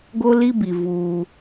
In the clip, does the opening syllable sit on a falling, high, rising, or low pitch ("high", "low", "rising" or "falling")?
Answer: high